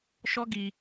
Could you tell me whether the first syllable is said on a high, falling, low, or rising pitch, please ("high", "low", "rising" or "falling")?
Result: high